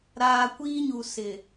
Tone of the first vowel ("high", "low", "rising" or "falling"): low